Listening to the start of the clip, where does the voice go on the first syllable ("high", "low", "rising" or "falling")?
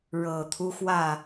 low